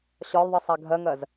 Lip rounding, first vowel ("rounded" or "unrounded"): rounded